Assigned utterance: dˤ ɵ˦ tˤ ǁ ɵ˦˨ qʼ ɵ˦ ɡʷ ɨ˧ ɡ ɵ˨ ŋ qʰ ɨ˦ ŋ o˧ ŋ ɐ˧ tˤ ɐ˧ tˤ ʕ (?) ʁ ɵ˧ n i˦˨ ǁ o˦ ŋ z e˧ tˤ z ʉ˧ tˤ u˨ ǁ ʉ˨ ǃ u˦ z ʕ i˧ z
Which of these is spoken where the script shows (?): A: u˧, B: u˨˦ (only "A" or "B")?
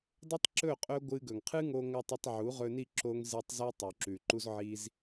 B